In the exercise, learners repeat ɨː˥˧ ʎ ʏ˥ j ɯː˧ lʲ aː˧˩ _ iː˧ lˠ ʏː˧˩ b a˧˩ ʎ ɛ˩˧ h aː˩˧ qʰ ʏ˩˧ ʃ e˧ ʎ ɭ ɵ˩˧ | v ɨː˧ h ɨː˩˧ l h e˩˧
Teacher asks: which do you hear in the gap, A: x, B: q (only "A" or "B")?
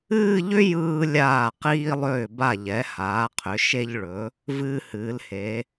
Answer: B